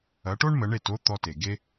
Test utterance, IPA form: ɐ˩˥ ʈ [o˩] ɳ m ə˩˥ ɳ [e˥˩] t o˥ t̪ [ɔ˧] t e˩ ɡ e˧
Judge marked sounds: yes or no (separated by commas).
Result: no, yes, yes